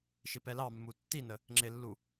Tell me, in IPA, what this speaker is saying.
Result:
ʃ ɪ p ɛ l ɑ mː u tː i n ə | ŋ͡ǁ ɪ lː u

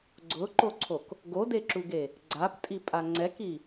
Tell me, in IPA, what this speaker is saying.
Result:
ɡ͡ǀ ʊ ǃ o ǀʰ o k | ɡ o d e ǁ u ɡ e | ɡ͡ǀ a p tʼ i pʼ a ŋ͡ǀ ɛ k i

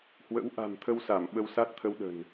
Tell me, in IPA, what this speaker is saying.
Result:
h w ə̰˧˥ w ʔ a̤˨˩ m t̪ʰ ə˧ w s a˧˩ m ɓ ə˧ w s a˦˥ t̚ t̪ʰ ə˧ w ɗ ə̤˨˩ n

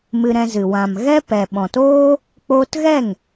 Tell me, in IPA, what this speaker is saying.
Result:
m ɨ˧ ɾ ɛ̃˧ z ɨ˨ w ã˨ m ɣ ɛ˦ p ɛ˨ ɓ ɔ̃˨ t oː˦ | k͡p o˧ t ɣ ɛ˦˨ ŋ

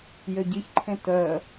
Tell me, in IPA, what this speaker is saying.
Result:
j ø ɟ i ç ǃʰ ẽ t œ

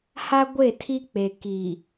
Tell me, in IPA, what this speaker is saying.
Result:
h a˦ ɡʷ e˦˨ tʰ i˦ k͡p e˨ k i˨

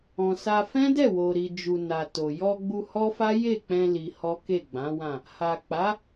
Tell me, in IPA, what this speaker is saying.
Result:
ɔ̃˨ s a˧ f ɛ̃˦ d ɛ˦˨ w o˨ ɾ i˨ d͡ʒ u˨ n a˨ t o˨ j ɔ˧ ɡ͡b u˧ h ɔ˦ f a˦ j e˦˨ k͡p ɛ̃˧ l i˧ h ɔ˦ k e˦˨ ɡ͡b ã˨˦ w ã˦˨ | h a˨ k͡p a˨˦

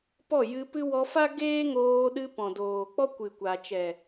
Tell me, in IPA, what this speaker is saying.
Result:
p ɔ˦˨ j ɨ˧ p ɨ˦ w ɔ˧ f a˦ ɡ eː˦ ŋ oː˧ ɗ ɨ˧ p ɔ̃˨ d oː˨ k͡p ɔ˦ kʷ ɨ˨ kʷ a˨ t͡ʃ ɛ˨

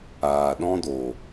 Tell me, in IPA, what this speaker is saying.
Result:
aː˨ ɗ ɔ̃˦ d o˨

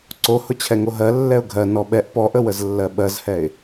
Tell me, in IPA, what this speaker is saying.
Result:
ǀ o h ʊ t͡ɕʰ ɛ ŋ o ɦ ɜ lː ɛ ʊ̯ ɡʱ ɜ n ɔ ɓ ɛ ʔ p ɔ ʔ ə w ə z lː ɜ ɓ ɜ z h ɛ ɪ̯

